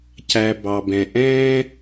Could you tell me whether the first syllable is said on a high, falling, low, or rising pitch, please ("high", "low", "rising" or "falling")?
low